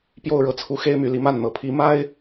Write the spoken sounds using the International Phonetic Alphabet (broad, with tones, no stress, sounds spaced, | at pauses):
p j o˥˩ ʊ̯ ɻ ɤ˧˥ t͡sʰ u˧˥ x e˥ ɪ̯ m y˧˥ l i˧˥ m a˥˩ n n̪ ɤ˨˩ pʰ i˧˥ m a˥ ɪ̯